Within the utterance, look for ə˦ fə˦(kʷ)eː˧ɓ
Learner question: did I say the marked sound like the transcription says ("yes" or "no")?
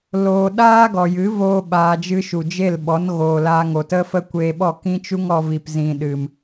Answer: yes